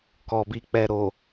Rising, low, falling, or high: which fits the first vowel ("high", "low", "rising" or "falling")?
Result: low